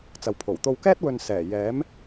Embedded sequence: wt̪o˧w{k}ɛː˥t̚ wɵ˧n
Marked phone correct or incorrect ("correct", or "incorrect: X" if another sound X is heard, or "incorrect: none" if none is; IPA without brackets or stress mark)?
correct